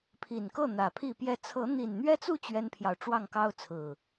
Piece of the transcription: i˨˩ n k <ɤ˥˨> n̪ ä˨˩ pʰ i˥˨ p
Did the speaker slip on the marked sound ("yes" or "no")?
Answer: no